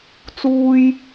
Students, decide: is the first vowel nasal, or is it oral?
oral